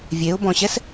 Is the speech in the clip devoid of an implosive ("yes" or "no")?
yes